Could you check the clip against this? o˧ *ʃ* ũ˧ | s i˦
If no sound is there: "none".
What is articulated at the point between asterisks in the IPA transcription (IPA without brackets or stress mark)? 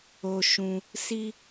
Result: ʃ